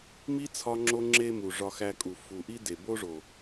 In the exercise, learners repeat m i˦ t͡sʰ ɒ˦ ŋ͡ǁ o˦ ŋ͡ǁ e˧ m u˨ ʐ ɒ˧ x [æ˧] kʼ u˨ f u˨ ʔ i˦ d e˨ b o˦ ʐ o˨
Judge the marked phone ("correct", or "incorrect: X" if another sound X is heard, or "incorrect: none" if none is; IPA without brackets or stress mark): correct